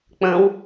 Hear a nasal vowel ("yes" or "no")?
yes